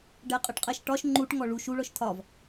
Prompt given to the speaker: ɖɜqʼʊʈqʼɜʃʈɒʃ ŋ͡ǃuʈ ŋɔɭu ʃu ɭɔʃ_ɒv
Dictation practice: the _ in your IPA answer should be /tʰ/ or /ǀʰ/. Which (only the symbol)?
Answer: tʰ